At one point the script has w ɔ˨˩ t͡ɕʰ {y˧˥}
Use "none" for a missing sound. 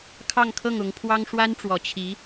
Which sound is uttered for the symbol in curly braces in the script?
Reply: i˧˥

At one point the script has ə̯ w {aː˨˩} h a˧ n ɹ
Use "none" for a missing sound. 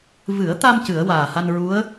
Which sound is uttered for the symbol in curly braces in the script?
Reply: aː˨˩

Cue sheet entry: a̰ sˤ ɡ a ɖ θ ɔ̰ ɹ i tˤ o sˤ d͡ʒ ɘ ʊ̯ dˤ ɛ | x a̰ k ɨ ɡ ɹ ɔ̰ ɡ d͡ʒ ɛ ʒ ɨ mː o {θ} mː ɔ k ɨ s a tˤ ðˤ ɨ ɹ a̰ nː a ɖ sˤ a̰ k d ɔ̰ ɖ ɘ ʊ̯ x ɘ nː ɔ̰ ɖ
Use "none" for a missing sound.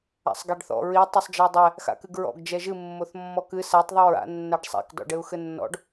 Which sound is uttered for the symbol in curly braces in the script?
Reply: θ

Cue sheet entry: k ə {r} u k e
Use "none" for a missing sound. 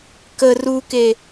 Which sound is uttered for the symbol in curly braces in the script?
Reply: r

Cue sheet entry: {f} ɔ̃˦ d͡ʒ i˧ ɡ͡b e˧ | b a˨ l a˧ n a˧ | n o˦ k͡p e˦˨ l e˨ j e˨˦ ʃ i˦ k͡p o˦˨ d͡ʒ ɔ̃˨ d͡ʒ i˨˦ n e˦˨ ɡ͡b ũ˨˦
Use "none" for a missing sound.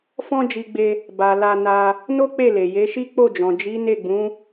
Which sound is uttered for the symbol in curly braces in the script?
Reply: f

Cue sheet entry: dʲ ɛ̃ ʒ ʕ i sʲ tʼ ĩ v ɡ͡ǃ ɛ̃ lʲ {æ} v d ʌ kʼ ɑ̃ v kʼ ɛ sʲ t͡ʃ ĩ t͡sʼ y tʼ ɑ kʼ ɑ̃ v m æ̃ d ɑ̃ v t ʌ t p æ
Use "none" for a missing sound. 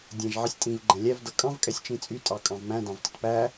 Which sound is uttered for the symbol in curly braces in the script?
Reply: æ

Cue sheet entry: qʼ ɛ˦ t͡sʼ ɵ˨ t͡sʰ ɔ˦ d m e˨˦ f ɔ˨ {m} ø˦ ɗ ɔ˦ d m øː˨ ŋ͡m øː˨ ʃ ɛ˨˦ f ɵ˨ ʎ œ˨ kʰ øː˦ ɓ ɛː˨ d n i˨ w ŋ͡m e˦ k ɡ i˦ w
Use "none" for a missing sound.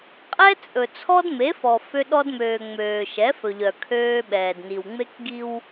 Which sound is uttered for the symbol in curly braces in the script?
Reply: f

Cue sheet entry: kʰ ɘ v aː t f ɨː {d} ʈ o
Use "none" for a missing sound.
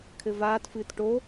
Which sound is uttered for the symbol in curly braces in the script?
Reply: t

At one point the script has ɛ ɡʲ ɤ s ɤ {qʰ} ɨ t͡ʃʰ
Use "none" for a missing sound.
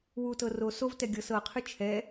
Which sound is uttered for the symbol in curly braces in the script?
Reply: qʰ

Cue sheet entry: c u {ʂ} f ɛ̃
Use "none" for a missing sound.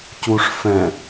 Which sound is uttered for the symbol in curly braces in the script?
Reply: ʂ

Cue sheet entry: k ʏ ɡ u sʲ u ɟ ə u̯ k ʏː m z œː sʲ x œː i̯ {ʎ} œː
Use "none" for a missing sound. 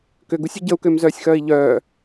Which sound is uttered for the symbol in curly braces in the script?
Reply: ʎ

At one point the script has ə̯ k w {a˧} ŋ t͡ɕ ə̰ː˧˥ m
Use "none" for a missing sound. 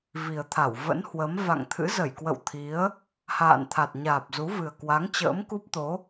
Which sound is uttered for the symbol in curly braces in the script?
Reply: a˨˦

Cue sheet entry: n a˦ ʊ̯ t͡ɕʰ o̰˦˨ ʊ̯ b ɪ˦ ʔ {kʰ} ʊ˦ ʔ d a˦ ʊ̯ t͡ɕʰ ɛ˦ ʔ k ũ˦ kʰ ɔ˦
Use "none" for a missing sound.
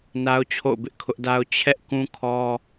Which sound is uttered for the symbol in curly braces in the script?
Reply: kʰ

